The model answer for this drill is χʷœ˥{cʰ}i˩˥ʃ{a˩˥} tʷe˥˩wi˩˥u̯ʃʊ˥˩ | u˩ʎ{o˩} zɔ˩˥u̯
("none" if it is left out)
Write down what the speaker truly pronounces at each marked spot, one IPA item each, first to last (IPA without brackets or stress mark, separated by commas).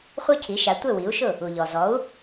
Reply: cʰ, a˩˥, ɔ˩